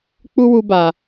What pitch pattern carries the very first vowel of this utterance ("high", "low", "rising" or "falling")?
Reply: high